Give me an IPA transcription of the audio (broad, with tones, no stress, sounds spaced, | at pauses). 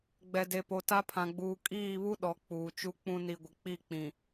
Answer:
ɡ͡b ɛ˨ d e˨ p o˨ t a˦ pʰ ã˨ ɡ͡b uː˨ kʼ iː˦˨ β u˦ ɗ ɔ˨˦ k͡p uː˨ t͡ʃ u˦ k͡p ũ˦ n i˨ ɡʷ ɪ˨ k͡p i˦˨ k͡p ĩ˨